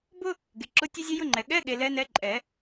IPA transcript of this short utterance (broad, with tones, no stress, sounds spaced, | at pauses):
b ʊ˥ | ɡ e˨ ǁ ʊ˧˥˧ tʲ ɛ˥ zʲ e˥ j ʊ˥ ŋ͡ǃ ɛ˨ ɠ ɛ˧˥˧ ɠ e˨ l ɛ˧˥ n ɛ˧˥ ǃʼ ɛ˨˩˦